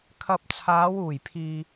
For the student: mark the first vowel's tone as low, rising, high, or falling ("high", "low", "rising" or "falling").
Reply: low